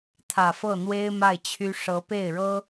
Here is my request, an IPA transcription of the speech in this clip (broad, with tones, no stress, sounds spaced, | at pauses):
t̪ʰ ä˨˩ f ɤ˥˩ n̪ w e˥ ɪ̯ m a˥˩ ɪ̯ t͡ɕʰ y˥ ʂ ɤ˧˥ p e˥˩ ɪ̯ ɻ ɤ˥